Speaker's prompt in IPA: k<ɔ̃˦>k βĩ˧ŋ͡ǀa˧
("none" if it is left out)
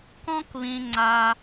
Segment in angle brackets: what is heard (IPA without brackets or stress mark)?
ɔ̃˦